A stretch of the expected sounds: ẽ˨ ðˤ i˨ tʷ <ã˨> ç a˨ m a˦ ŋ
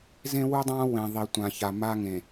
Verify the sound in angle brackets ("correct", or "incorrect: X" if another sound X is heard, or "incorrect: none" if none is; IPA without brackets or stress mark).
correct